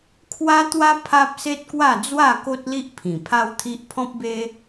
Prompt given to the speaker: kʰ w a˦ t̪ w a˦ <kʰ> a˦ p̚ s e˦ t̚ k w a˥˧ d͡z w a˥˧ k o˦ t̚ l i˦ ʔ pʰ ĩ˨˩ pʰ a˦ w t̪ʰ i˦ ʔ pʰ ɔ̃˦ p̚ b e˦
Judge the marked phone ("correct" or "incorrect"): incorrect